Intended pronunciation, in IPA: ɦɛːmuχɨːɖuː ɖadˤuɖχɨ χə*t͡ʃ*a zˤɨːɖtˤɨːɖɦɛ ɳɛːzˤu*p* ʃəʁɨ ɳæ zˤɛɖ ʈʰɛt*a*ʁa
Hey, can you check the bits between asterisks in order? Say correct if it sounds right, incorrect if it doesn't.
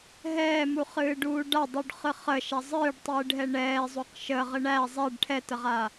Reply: incorrect: ʃ, incorrect: q, incorrect: ə

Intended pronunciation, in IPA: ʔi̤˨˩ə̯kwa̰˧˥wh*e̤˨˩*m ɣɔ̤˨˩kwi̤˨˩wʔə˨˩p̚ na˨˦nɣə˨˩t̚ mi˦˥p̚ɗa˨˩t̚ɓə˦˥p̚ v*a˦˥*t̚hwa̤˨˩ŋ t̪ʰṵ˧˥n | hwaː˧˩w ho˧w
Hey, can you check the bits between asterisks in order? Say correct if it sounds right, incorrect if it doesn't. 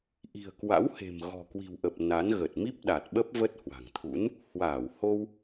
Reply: correct, incorrect: ə˦˥

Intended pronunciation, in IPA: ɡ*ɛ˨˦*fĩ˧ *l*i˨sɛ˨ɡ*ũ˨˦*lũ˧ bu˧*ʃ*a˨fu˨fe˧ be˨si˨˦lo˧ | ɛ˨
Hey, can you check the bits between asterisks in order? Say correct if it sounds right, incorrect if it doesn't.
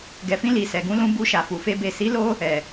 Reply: incorrect: ɛ˨, correct, correct, correct

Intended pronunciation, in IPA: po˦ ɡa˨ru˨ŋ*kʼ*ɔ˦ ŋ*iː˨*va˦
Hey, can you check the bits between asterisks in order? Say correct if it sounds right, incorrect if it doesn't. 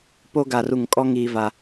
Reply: correct, incorrect: iː˦

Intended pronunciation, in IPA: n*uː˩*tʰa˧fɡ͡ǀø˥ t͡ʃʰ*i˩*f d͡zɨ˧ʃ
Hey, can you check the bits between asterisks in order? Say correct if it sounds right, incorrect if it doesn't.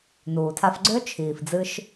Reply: correct, incorrect: iː˩

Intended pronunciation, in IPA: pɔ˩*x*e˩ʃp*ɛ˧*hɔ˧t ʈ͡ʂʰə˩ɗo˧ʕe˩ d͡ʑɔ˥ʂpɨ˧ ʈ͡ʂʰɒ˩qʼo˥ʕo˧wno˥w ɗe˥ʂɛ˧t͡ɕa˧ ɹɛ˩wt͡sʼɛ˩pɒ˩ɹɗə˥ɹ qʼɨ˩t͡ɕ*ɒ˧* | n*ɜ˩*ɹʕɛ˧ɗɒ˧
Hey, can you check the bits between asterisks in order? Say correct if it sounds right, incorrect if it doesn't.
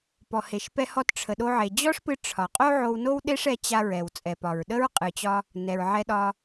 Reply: incorrect: h, correct, correct, incorrect: ɛ˩

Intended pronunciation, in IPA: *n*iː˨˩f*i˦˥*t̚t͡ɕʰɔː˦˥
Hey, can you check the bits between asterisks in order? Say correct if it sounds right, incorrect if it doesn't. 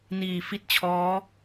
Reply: correct, incorrect: i˥˩

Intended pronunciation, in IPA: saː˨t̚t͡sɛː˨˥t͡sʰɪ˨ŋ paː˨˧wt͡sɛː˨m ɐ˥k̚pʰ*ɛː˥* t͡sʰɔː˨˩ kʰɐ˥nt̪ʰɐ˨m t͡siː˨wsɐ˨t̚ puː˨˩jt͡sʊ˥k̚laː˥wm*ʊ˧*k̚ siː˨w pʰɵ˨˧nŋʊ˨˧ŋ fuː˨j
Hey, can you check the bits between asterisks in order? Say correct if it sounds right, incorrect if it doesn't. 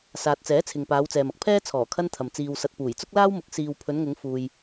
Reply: correct, incorrect: ʊ˨˥

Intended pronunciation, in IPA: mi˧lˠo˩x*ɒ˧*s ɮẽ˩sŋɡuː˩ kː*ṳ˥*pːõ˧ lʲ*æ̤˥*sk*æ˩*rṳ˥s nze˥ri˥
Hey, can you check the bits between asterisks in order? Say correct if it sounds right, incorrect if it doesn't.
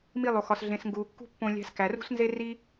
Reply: incorrect: ɒ˩, correct, incorrect: æ̤˧, correct

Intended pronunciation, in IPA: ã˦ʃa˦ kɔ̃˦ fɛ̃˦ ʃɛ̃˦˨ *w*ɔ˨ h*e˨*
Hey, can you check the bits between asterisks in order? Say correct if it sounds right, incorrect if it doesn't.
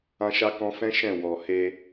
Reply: correct, incorrect: e˧

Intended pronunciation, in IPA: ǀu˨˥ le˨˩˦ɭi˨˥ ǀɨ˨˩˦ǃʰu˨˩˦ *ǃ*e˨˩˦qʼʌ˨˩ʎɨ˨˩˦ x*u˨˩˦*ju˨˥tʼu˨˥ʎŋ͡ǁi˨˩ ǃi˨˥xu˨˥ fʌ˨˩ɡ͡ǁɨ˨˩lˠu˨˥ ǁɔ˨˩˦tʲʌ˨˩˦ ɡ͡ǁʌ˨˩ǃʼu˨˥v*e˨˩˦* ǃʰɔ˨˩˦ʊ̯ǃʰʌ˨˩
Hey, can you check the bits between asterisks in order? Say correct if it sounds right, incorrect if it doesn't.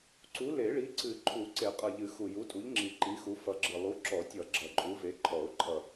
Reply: incorrect: ǀ, incorrect: u˨˩, incorrect: e˨˥

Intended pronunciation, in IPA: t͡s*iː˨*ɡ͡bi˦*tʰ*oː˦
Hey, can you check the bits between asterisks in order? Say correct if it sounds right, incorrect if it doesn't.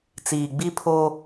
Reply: correct, incorrect: pʰ

